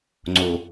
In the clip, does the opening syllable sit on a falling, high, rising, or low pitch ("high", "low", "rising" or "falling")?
low